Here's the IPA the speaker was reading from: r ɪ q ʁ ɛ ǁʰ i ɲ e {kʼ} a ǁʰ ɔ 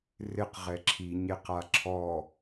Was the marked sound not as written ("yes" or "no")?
yes